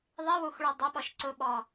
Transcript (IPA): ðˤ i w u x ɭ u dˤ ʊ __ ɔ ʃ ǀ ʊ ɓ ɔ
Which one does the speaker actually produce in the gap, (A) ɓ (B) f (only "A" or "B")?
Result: A